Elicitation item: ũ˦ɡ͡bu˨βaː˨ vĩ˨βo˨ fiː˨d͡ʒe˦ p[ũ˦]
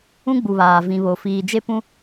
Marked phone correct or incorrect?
correct